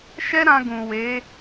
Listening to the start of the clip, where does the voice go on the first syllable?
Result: high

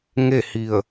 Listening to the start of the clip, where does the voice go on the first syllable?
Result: falling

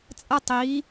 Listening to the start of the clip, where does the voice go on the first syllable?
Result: high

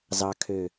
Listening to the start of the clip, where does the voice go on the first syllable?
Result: low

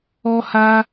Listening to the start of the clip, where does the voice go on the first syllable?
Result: high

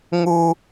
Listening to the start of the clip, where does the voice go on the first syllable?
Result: high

